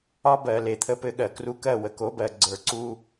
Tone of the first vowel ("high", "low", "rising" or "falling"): high